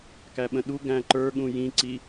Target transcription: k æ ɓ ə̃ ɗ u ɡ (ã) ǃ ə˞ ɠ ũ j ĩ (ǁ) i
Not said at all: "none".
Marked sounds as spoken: æ̃, ǀ

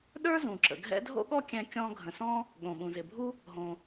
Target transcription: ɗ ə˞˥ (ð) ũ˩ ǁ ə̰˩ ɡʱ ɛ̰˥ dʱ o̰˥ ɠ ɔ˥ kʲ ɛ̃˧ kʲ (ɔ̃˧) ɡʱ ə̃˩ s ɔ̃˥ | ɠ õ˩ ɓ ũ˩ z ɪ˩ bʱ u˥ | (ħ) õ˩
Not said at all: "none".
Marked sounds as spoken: z, ɔ̃˧, ɦ

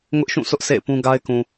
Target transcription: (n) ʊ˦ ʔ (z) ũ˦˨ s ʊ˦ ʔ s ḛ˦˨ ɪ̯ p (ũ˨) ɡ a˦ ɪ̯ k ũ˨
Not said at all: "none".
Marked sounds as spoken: ŋ, ʃ, ũ˦

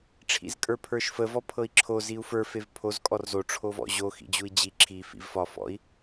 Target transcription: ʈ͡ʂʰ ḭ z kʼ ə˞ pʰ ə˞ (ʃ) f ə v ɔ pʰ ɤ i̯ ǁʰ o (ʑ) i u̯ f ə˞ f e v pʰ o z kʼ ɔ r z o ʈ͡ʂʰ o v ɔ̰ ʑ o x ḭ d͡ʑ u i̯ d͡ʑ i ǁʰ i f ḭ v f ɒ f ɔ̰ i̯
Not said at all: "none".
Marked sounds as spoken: ʃ, z

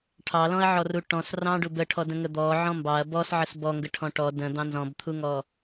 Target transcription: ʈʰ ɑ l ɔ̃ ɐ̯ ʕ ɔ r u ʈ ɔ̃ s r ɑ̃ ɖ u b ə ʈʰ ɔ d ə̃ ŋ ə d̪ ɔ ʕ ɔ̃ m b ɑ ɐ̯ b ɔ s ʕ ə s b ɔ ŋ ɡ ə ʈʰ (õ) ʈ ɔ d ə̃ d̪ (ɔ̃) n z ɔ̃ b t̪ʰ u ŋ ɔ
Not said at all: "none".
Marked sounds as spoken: ɔ̃, ɑ̃

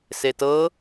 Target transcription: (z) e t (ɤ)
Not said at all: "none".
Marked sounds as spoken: s, ɤ

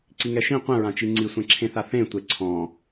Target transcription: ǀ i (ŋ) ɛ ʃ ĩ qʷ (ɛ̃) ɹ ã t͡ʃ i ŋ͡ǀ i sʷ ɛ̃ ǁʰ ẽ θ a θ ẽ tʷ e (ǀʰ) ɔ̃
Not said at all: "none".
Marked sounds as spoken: ŋ, ɛ̃, ǀʰ

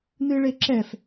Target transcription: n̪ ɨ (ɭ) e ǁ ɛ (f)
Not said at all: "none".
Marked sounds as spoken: ɭ, f

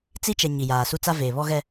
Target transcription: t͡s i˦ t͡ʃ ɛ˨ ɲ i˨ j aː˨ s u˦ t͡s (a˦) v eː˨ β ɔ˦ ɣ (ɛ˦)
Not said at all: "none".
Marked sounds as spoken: a˦, ɛ˦

